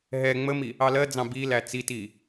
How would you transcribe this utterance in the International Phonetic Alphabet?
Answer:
ɦ ɛ ŋ͡m ə m i | ɑ l ɜ d͡z ɑ̃ b i l æ t͡s i t i

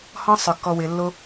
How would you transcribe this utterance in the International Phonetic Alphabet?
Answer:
h ɔ̃˦ sˤ ʏ˨ kː ɔ˧ w ɪ˨˦ lː o˦

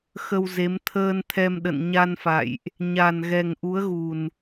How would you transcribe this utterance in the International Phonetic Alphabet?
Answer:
x ə˧ w z e˨˦ m t̪ʰ əː˧ n t̪ʰ ɛ˧ m ɗ ə̰˧˨ n ɲ a˧ n f a̰˧˨ j ʔ | ɲ a˨˩ n ɣ ɛ˨˩ ŋ ʔ u˨˦ ə̯ ɣ u˨˩ n

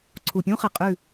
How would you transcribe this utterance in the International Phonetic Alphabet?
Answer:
ǀʰ u˨ pʲ ũ˦ χ ə˨ qʼ ʉ˦˨

